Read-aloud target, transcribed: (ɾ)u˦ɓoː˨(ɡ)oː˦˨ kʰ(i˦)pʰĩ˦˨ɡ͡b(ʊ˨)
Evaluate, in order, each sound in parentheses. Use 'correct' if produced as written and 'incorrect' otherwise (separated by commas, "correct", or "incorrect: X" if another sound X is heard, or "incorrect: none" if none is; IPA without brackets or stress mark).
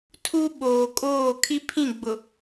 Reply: incorrect: tʰ, incorrect: kʼ, correct, correct